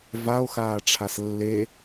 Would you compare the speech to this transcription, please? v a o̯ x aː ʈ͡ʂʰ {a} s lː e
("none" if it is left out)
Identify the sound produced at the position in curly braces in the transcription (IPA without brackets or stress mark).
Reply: a